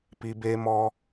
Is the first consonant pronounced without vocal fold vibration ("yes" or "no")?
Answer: yes